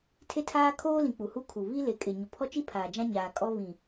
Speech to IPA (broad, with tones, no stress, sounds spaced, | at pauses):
tʰ e˦ tʰ aː˦ kʰ oː˦ l ĩ˨ k͡p u˨ h u˦ kʰ u˨ β i˦ l e˨ kʼ ɪ˨ ɲ ʊ˨ pʰ ɔ˦ t͡ʃ i˦ pʰ aː˨ d͡ʒ ã˦ ɲ aː˨ kʼ ɔ˦ β ĩ˨